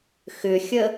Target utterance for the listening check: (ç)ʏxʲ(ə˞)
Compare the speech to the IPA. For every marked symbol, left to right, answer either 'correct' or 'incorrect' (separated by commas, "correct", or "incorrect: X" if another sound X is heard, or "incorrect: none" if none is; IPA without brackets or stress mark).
incorrect: x, incorrect: ə